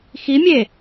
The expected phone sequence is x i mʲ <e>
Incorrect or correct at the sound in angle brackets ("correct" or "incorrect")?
correct